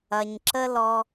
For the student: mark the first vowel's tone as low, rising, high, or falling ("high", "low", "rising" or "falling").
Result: low